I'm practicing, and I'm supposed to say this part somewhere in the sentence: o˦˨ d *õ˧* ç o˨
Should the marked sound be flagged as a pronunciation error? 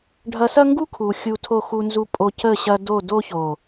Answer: yes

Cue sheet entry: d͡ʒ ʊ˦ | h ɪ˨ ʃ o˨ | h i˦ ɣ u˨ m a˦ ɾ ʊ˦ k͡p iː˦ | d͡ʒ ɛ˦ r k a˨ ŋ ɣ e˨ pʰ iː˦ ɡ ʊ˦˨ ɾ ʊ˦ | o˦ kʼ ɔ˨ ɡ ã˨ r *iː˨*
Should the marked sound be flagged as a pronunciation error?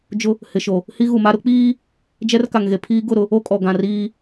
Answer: yes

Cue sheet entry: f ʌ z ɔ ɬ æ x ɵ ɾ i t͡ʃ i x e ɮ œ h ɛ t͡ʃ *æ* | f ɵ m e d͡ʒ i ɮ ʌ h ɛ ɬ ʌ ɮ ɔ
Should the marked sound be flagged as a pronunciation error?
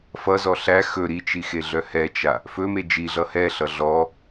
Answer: yes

